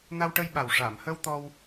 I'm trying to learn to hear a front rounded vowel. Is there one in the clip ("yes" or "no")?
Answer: no